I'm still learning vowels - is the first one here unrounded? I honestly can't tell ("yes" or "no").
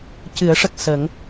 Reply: yes